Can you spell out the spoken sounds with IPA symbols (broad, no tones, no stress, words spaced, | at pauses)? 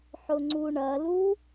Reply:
ħʊŋ͡ǀuɳɐlu